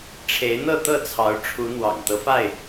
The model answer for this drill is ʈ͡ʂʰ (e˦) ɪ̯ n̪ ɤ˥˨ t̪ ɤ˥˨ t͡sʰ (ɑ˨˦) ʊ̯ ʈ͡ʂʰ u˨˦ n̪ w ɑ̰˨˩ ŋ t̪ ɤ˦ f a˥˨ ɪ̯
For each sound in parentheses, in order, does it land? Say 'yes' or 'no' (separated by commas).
no, yes